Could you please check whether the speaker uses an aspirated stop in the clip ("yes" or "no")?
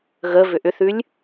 no